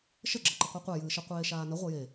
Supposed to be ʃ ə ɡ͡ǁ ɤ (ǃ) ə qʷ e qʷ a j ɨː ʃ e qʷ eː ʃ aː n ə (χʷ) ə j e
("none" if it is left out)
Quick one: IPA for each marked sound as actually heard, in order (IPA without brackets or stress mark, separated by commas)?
ǃ, ʁʷ